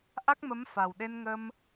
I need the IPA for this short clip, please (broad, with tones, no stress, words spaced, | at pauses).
ʔa˦˥k̚mə˧˥m fa˨˩wɗe˧nŋə˧m